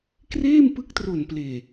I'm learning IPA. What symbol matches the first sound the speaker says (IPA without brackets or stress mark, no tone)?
k